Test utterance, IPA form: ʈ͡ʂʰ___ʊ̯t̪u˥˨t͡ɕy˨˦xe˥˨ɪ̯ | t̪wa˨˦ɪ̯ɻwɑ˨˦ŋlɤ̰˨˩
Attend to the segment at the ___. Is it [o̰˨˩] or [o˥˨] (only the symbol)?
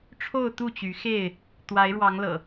o˥˨